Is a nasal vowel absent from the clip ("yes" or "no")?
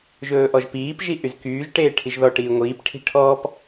yes